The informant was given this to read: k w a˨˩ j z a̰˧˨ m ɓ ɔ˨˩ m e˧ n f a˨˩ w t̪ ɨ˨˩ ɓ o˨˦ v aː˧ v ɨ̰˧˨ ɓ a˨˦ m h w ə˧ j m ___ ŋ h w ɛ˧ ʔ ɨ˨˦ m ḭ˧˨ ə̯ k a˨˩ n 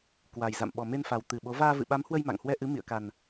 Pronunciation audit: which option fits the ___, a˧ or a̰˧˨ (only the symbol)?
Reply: a̰˧˨